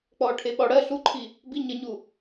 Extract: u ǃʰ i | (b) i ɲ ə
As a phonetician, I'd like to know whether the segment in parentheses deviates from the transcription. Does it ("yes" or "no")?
no